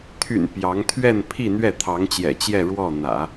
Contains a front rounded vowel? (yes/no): yes